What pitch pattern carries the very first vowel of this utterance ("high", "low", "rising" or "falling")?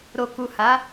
low